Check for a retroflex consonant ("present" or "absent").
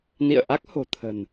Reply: absent